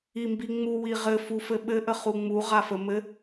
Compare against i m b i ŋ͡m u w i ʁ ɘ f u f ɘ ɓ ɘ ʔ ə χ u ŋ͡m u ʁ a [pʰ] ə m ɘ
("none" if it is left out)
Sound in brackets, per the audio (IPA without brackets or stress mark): f